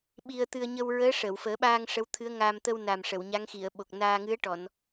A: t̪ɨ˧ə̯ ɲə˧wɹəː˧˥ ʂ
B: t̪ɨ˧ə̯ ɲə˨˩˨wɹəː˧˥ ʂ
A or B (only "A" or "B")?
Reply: A